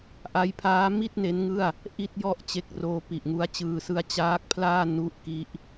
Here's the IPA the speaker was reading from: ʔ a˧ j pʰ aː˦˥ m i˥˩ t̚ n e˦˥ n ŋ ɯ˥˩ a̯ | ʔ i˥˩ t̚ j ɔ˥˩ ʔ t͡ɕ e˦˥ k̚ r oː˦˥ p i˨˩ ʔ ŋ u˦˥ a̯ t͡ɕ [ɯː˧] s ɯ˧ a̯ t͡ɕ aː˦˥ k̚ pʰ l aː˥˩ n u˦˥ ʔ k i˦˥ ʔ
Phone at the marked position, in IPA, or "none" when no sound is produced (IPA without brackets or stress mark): ɯː˧